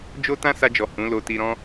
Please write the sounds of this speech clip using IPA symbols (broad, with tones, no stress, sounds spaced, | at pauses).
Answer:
d͡ʒ o˦ t ã˦ s a˧ d͡ʒ ɔ˨ h ũ˨˦ l o˧ t i˧ ɾ ɔ̃˧